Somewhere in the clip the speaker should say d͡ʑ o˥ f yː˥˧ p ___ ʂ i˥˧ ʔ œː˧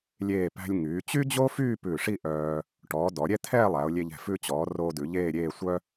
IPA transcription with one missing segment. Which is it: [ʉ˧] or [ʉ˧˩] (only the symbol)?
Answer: ʉ˧˩